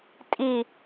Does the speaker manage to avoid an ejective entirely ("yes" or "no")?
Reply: no